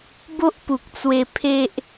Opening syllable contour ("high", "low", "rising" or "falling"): high